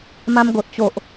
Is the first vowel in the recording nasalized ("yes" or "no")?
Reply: yes